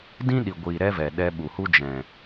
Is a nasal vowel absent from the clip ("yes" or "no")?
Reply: no